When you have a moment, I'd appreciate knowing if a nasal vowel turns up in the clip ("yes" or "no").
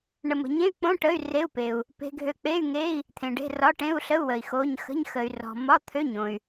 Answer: yes